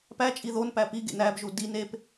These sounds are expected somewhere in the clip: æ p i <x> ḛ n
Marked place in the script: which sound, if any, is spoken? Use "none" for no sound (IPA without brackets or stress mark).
ɡ